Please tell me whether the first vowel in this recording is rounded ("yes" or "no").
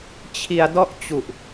no